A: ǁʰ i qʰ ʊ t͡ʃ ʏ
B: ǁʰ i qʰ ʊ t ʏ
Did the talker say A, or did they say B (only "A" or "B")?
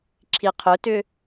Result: B